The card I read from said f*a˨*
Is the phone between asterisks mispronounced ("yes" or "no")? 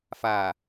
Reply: no